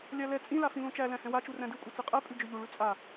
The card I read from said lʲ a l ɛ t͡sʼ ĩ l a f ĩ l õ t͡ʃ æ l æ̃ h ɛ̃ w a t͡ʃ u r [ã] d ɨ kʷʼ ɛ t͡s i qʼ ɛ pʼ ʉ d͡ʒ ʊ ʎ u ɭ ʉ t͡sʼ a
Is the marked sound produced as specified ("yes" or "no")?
no